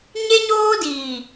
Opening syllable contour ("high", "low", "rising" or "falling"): high